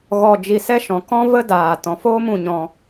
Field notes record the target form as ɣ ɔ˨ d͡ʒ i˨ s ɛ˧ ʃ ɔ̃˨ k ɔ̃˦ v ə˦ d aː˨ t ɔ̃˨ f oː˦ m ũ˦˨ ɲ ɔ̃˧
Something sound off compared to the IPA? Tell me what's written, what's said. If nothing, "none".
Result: none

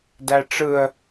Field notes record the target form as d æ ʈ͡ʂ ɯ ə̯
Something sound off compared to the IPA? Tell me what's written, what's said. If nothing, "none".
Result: none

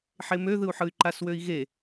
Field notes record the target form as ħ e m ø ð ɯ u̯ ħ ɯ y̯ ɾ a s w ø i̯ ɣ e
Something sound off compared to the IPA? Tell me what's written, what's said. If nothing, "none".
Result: ɾ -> ǃ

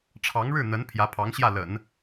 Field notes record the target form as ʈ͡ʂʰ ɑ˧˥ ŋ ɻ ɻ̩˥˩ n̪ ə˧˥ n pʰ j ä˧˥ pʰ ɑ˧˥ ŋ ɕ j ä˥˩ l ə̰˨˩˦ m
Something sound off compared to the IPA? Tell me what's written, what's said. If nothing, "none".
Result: m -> n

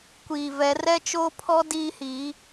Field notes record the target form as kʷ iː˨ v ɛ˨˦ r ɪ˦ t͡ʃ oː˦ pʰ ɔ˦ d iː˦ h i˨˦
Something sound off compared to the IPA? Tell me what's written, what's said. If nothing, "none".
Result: ɪ˦ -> ɛ˦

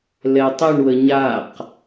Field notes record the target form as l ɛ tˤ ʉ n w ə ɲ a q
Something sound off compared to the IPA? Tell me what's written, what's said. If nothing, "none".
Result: n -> ɳ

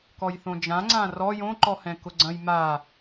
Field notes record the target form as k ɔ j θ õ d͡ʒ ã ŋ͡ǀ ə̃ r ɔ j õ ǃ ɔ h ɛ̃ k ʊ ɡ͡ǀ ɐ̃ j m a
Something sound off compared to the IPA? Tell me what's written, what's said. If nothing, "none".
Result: ə̃ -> ã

